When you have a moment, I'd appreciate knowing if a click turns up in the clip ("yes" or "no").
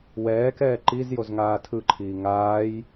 yes